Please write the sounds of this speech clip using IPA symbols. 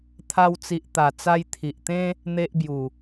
t̪ʰa˧wt͡si˨ʔt̪a˨˩ t͡sa˧jt̪ʰi˨ʔt̪ẽ˦ | n̪e˦ʔbju˨˩

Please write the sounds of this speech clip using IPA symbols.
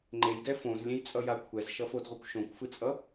ŋ͡ǃejdɛ fõzlʲẽjt͡sʼʌja kʷʰɛzʃʌfodʁʷɯkʷ ʃõkʷfɯt͡sʼʌ

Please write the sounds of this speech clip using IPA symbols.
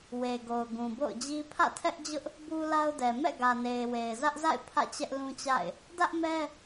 we˨ɡo˨ʊ̯ ɡũ˨bo̰˦˨ʊ̯d͡ʑi˦ pʰä̰˦˨tʰɛ˦ʔd͡ʑʊ˦ʔ | bu˦la˦ʊ̯dɛ˨ mɛ̰˦˨ɡä˨ne˨ɪ̯ we˨ɪ̯zä˦ʔza̰˦˨ɪ̯ pʰä̰˦˨t͡ɕɛ˦ʔlũ˦t͡ɕa̰˦˨ɪ̯ | dä˦ʔmɛ˦

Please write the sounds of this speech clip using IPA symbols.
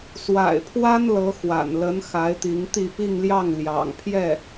swa̰˨˩ɪ̯pʰwa˥n lɤ˧˥xwa̰˨˩n lə˧˥n xa˧˥ɪ̯t̪i˧˥ŋt̪i˥˧ pi˥˧ŋljɑ˥˩ŋ ljɑ̰˨˩ŋpʰjɛ˥˩

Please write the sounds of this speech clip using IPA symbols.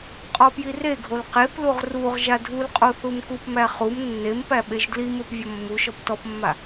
qʼɔpjireɡʱol qepluʁ ruʁ ʒadʱulqʼo θumkupmæ χum nːempæ ɓeʒdlimep vʲɔmːuʃɔp tɔpmːa

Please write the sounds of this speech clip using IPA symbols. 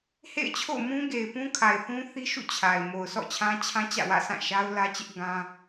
hḛ˦˨ɪ̯t͡ɕʰo̰˦˨ʊ̯ mũ˦ɡe˨ɪ̯pũ˦ kʰa˨ɪ̯θũ˦θi˦ʃṵ˦˨ t͡ɕʰa˨ɪ̯ mo˨ʊ̯sɔ̰˦˨t͡ɕʰã˦ t͡ɕʰã˦t͡ɕä̰˦˨wä̰˦˨ sã˦˨ ʃa˦ʊ̯lä˦t͡ɕɪ˦ʔ ɡã˦

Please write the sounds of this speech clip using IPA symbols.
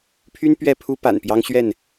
pʰy˦n pɥɛ˥˨pʰu˦ pa̰˨˩npjɑ˦ŋ ɕɥɛ˥˨n

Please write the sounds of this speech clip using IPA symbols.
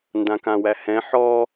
ndãkãwæhɛ̃ ħɔ

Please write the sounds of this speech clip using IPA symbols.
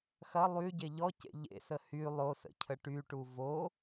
xɐ lˠyɟe ʎɔcḛ ʎḛsə hy lˠosə̰cʰə ʈyʈu vo

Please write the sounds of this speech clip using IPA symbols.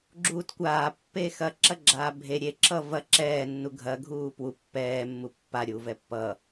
ɡ͡ǁuːtkʷaːpːe xɐǁɐɡ͡ǁaː bʱe ɾʲeǁʰʌ vɐ ǁɛːnːu ɡʱɐɡʱuː pwu pːɛː mːupːaɾʲuː vɛpːʌ

